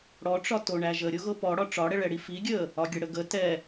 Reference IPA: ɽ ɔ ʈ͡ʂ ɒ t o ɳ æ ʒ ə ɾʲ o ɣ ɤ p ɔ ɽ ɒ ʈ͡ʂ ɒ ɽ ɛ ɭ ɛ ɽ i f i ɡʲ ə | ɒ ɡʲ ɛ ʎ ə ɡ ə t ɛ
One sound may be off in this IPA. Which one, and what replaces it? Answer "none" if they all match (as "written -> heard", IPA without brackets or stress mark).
ʎ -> ɽ